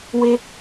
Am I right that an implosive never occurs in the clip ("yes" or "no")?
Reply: yes